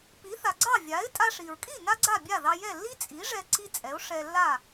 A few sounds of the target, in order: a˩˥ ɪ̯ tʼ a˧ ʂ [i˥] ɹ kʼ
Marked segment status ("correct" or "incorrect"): incorrect